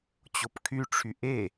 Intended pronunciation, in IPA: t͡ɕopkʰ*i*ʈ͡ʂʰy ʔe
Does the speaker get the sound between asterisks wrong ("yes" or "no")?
yes